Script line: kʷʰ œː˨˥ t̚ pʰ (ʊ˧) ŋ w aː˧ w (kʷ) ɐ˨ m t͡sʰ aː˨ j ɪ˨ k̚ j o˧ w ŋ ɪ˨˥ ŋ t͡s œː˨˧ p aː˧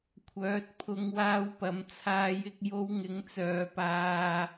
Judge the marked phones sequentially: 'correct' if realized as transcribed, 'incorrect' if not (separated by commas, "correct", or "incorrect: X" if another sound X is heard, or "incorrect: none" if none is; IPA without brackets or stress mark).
correct, incorrect: p